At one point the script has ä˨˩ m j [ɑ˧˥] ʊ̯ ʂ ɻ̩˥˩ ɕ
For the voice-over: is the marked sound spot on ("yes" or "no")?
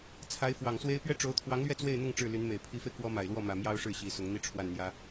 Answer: no